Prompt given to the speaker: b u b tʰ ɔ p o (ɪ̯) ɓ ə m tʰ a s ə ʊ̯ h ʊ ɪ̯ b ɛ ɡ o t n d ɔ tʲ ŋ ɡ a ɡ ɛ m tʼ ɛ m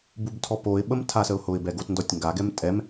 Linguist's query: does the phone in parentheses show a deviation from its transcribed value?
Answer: no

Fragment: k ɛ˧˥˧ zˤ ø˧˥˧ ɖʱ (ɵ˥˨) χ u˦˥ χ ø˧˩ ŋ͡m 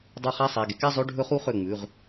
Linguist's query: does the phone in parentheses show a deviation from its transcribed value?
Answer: yes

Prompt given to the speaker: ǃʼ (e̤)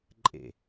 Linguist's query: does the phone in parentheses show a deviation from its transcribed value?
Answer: yes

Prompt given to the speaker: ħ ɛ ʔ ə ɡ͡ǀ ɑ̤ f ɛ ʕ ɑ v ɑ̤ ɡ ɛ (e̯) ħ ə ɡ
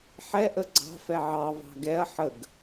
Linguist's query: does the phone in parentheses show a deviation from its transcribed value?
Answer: yes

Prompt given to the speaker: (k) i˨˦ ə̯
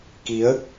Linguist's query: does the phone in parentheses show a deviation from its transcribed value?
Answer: no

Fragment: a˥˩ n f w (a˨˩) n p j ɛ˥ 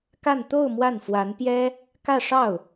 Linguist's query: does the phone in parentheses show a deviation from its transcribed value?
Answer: yes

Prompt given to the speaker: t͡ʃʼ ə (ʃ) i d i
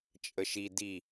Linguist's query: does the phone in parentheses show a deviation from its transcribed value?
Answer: no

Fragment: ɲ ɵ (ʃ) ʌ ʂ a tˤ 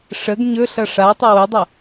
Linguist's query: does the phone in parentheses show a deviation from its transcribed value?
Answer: yes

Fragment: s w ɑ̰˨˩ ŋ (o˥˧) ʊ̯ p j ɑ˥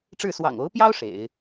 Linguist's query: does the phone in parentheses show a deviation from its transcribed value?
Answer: yes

